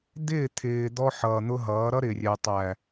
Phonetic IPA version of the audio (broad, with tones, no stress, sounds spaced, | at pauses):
d̪ ɪː˦˨ t̪ʰ ɪː˨ d̪ ɔ˦ ħ ʌː˨ n̪ ʊ˦ ɦ ʌː˨˦ ɾ ʌ˦ ɾ ɪ˨ rʲ ɛ˨ tˤ æ˨